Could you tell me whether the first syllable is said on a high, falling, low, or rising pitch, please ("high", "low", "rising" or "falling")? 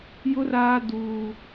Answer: high